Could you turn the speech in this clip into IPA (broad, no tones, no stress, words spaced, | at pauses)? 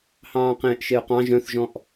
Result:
hɑ̃ːqẽːʔʃeʊ̯qɑ̃ ʒœ̃θʒɔ̃ʔ